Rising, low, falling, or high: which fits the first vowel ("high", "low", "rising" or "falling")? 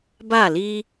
falling